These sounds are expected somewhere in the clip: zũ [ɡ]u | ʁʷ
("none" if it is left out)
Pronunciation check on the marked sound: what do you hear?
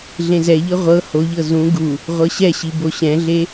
ɡ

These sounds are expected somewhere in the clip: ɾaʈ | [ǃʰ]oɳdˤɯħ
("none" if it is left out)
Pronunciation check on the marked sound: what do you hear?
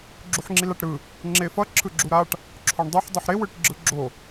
ǁʰ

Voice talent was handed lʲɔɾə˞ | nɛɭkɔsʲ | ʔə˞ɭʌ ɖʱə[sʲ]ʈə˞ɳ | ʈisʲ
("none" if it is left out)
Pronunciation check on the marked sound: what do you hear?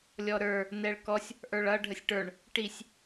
sʲ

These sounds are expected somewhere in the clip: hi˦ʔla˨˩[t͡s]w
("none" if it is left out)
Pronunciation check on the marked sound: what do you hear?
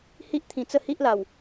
none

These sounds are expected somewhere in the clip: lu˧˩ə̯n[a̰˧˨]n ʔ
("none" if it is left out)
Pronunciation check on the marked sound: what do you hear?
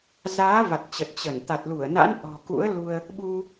a̰˧˥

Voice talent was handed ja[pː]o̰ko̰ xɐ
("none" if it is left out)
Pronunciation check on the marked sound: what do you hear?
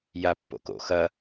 pː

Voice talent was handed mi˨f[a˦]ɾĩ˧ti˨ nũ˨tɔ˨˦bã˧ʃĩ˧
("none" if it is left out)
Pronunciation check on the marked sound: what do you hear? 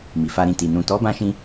a˧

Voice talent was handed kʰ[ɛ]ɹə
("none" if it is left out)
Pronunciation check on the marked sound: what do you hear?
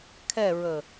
ɛ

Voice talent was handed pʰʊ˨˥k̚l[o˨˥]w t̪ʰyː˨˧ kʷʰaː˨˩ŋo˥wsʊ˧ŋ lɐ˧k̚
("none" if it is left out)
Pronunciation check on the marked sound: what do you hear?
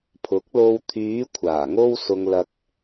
o˧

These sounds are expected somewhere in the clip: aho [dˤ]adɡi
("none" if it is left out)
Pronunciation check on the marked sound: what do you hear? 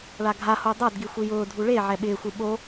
dˤ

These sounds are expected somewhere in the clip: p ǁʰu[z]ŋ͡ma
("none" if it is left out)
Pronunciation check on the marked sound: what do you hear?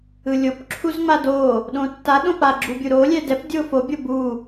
z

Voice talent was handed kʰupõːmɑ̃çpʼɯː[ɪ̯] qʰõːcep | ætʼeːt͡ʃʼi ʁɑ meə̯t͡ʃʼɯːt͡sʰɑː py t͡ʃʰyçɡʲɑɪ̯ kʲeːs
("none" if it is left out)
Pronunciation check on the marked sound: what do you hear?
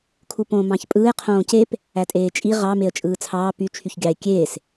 ɪ̯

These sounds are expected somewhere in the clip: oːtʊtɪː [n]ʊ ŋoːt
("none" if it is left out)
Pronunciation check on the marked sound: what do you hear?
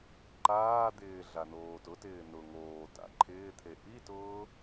n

